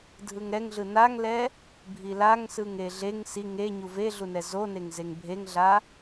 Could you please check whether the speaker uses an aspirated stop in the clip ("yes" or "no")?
no